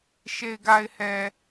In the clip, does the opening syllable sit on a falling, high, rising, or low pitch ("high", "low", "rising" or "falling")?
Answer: low